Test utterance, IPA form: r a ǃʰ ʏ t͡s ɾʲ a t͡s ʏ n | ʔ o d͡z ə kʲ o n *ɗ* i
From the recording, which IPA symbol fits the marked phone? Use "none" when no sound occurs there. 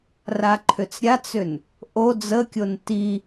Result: t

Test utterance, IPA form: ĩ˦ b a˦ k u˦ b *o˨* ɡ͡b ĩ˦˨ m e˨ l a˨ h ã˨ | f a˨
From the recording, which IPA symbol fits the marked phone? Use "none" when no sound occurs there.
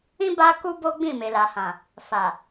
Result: o˦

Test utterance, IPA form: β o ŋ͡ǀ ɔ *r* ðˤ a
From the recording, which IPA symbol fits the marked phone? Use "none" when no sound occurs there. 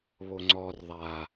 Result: r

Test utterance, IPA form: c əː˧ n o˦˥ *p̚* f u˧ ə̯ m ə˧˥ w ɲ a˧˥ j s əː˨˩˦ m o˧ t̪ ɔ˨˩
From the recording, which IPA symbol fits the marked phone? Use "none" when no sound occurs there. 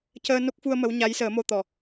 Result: k̚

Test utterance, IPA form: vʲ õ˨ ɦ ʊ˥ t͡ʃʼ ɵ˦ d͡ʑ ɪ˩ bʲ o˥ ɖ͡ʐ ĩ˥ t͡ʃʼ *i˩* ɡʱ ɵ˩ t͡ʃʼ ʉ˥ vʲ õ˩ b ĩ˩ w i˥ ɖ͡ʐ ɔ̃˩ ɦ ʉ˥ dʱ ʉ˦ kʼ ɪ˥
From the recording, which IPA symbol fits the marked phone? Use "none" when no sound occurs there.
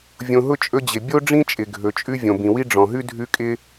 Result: ɪ˩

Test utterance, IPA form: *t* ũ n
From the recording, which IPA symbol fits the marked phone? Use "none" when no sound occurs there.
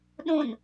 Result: ɗ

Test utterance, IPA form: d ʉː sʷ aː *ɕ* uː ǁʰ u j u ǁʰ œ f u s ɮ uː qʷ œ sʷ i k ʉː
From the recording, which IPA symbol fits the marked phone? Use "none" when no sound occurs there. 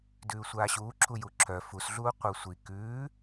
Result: ɕ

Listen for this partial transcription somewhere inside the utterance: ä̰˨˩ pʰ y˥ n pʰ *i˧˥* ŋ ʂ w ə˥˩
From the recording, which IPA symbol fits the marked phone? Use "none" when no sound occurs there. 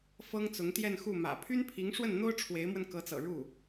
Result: i˧˥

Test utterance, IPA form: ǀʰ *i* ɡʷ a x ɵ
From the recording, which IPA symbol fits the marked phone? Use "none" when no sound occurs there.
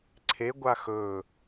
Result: e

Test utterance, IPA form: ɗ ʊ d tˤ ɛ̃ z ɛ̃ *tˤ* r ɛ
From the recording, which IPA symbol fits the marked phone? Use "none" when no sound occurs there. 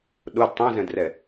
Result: d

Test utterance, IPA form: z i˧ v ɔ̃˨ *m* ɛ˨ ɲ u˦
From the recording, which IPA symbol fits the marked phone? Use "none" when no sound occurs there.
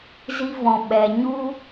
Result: ɓ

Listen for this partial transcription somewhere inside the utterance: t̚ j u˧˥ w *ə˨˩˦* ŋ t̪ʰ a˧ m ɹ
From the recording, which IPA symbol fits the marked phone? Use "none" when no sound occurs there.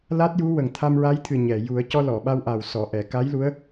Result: ə˨˩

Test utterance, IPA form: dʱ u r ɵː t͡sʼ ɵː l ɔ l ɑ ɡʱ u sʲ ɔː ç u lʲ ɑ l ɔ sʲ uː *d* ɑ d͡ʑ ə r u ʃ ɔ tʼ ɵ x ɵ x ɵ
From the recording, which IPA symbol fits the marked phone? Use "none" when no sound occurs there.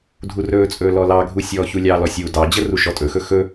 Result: d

